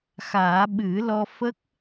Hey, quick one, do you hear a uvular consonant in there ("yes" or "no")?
no